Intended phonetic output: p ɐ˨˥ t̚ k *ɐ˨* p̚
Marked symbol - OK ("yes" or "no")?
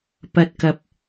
yes